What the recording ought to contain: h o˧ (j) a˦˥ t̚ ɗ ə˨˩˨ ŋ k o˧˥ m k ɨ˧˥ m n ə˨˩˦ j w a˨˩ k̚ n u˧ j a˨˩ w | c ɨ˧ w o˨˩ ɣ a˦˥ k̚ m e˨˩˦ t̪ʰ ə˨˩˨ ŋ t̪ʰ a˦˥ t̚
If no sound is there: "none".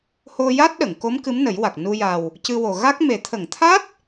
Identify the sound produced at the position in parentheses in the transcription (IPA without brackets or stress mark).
j